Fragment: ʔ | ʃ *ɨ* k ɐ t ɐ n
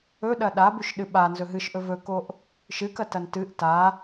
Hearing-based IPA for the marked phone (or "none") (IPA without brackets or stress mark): ɨ